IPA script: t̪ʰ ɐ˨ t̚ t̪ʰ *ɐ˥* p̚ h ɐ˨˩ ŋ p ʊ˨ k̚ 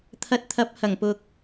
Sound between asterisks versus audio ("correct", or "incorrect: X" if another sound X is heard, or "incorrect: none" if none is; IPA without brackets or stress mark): incorrect: ɐ˨˥